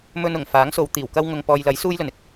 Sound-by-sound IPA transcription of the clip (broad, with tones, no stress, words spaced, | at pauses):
mɵ˧n ʊ˨˩ŋ faː˨˥ŋso˨˧w t̪iː˨˩wkɐ˥wŋʊ˧ŋ pɔː˨jlɐ˨˥j suː˥jlɵ˨n ɪ˨k̚